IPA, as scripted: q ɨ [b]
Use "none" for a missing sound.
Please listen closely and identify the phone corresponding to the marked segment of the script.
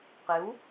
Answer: w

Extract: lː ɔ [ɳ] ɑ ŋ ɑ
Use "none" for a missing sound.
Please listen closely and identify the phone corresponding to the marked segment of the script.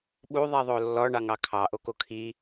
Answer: ɳ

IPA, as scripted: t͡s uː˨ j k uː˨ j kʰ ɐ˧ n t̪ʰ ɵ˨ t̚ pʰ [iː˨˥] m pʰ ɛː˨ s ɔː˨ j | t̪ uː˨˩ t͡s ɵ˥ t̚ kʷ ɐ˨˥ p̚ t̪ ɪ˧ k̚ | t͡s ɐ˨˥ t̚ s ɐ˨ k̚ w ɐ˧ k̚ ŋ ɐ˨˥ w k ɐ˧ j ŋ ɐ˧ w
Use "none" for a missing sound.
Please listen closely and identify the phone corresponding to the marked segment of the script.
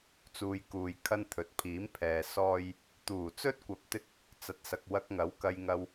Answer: iː˨˥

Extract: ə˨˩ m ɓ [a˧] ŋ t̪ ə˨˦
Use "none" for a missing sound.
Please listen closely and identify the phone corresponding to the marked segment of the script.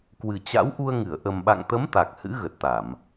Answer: a̰˧˨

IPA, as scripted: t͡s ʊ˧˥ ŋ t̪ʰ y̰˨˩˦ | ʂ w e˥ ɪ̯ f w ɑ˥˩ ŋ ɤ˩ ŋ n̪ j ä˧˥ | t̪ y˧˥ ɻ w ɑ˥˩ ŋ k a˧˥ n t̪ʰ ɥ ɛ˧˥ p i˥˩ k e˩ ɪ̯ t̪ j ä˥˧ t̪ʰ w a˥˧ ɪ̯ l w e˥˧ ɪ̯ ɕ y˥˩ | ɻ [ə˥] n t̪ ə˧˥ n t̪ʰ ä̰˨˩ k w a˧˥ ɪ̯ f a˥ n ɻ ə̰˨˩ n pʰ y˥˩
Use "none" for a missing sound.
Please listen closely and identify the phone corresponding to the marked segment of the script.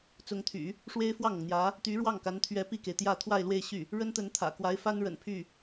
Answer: ə˥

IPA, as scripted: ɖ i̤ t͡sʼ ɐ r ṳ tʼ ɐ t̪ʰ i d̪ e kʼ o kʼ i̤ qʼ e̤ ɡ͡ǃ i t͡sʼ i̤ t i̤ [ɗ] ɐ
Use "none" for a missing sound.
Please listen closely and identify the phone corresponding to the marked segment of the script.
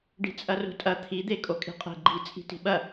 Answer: ɓ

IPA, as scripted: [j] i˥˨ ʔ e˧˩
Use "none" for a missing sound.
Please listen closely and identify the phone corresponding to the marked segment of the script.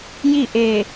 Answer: j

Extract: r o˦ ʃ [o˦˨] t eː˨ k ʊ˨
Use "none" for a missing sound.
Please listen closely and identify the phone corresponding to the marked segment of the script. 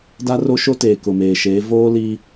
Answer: o˦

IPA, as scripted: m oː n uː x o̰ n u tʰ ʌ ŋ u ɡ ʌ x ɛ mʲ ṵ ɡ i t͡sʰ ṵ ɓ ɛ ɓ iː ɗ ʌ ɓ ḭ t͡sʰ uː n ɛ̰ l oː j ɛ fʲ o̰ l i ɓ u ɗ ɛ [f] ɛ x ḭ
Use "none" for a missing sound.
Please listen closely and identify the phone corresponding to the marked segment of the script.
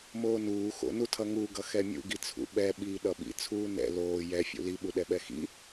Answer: ɓ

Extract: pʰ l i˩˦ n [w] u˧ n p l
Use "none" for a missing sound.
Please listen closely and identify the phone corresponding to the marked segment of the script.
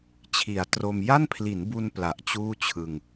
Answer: b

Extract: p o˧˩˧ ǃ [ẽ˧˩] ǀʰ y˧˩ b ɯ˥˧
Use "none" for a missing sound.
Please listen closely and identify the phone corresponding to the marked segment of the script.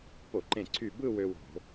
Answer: ẽ˧˩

